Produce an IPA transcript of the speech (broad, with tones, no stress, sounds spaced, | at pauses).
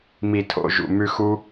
m i˨ tʰ o̰˨ ʒ ṵ˨ m ʉ˧ x u˦